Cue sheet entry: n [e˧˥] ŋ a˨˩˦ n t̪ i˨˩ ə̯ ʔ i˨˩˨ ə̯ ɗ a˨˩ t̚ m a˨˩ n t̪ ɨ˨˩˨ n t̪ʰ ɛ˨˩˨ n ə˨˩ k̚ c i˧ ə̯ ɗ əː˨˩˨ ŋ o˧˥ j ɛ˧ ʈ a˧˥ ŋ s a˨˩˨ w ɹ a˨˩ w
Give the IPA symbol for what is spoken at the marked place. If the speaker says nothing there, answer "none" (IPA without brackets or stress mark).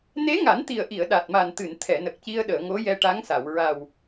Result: e˧˥